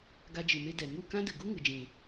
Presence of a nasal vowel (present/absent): present